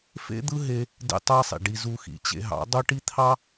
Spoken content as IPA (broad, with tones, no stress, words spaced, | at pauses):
fḛ˦ d̪ɯ˦ɦe˧ | dḛ˦tˤæ˦sˤḭ˨ɖi˧ zu˧xḭ˨t͡ɕḛ˧ ɦɑ̰˨˦ dˤo˦ʈi˦t̪ʰɑ˦